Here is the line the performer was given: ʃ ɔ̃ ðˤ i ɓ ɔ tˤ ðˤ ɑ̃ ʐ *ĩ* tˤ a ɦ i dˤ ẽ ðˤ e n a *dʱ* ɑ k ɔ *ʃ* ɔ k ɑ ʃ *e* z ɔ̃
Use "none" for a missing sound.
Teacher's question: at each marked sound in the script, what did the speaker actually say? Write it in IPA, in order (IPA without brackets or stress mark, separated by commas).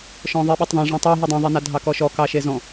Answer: ẽ, dʱ, ʃ, e